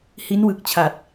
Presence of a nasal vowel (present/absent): absent